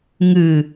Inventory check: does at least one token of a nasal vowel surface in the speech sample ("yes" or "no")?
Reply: no